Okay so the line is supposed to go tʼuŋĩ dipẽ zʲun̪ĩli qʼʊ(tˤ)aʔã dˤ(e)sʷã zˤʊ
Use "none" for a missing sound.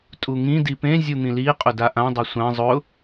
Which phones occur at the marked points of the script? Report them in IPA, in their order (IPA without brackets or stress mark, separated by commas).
d, e